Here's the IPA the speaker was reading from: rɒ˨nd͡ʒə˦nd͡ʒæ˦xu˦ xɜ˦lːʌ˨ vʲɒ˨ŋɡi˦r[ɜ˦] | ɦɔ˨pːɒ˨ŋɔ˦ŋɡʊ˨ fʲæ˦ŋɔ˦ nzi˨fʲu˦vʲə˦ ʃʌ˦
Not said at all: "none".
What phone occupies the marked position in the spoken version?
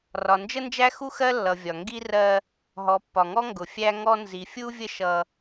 ɜ˦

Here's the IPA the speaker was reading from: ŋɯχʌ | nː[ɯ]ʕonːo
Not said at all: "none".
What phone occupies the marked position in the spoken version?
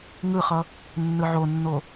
ɯ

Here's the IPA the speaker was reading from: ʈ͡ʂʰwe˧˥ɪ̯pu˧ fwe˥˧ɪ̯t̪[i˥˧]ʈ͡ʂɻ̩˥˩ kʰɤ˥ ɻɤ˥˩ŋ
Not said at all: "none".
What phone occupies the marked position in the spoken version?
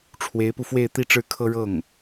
i˥˧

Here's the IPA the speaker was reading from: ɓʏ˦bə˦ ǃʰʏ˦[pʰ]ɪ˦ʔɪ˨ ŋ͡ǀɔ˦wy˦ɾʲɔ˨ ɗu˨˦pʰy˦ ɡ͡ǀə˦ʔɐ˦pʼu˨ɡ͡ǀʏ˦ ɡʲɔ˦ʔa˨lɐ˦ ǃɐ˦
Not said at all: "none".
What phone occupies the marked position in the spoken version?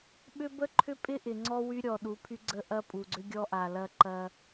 pʼ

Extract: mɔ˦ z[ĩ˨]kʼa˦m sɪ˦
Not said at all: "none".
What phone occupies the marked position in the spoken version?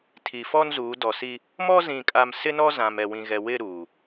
ĩ˦˨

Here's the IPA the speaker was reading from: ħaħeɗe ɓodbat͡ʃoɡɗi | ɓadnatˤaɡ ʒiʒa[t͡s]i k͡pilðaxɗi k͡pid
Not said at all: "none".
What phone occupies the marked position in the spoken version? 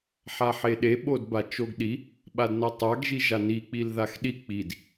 n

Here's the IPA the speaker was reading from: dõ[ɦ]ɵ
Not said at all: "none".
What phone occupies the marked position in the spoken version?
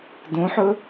ħ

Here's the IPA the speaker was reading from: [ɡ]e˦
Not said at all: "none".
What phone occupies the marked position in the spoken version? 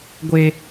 ɡʷ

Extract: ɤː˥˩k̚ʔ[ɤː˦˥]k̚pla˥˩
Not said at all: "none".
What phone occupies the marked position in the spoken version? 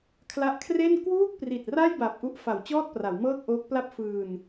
oː˦˥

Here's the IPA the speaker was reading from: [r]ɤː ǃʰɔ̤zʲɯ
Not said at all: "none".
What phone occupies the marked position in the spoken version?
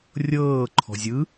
rʲ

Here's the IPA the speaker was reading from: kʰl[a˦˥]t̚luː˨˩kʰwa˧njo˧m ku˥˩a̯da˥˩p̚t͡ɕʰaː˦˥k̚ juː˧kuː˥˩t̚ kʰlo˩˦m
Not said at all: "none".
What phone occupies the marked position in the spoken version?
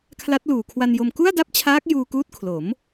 a˦˥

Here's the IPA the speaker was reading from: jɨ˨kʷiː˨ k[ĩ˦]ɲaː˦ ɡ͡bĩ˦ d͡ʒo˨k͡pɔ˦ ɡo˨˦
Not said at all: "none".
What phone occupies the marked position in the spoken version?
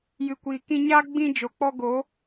ĩ˧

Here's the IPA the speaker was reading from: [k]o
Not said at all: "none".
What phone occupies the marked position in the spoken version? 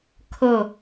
kʰ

